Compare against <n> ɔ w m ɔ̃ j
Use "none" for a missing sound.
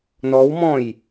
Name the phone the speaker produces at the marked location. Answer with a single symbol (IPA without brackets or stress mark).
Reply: n